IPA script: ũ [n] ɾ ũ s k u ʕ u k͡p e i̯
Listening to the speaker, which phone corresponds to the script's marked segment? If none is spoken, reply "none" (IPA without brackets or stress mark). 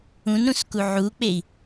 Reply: n